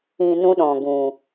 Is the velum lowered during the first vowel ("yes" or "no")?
yes